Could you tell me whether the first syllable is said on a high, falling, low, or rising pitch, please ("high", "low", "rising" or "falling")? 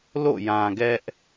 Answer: falling